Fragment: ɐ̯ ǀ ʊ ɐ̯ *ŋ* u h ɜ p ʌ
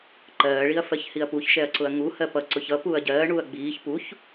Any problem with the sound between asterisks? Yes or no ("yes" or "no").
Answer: no